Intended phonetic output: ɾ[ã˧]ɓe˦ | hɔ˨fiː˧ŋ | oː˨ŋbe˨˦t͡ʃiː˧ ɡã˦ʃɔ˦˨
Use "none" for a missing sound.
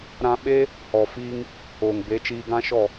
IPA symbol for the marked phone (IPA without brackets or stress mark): ã˧